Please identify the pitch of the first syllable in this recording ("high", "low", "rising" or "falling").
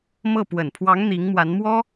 falling